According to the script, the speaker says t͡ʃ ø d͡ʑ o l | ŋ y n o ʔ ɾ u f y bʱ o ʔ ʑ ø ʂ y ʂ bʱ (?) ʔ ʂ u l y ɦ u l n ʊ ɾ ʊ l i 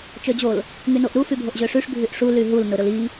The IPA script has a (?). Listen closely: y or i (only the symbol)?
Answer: y